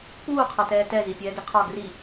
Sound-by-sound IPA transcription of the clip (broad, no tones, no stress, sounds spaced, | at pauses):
k͡p uː qʰ ʌ t ɛː t ɛ z i pʲ ɛː ɡ i qʰ ɒ ɡ r i